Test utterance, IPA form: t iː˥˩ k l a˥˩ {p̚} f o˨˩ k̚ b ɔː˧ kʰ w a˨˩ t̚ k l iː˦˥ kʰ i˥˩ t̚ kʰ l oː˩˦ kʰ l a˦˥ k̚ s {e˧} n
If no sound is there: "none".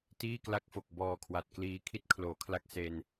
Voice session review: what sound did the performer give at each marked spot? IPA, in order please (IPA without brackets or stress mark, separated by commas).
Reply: k̚, e˧